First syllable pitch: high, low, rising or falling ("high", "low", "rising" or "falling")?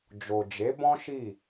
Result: low